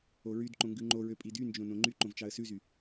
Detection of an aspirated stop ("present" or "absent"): absent